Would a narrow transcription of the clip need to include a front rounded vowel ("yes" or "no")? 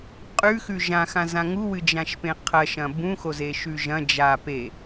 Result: no